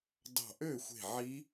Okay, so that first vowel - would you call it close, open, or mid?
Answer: open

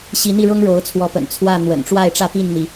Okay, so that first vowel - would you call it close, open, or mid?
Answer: close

